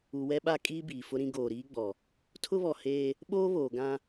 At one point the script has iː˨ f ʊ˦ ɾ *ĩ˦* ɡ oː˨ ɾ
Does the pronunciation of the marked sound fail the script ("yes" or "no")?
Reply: no